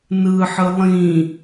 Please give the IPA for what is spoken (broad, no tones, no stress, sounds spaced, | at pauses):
n ɯ ħ ɯ lˠ ĩ